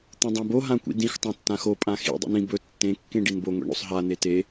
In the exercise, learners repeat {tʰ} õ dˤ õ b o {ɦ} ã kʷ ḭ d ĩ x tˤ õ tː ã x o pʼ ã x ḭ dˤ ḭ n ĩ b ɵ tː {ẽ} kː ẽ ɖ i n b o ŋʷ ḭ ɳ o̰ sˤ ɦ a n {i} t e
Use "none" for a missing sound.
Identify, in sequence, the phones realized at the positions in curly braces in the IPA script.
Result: t̪, ɦ, ẽ, e

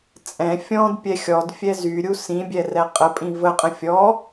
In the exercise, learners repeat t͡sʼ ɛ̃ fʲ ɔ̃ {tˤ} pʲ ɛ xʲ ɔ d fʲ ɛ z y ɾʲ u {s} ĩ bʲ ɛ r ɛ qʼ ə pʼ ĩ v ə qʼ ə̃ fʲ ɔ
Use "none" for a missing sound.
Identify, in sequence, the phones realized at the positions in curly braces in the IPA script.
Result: d, s

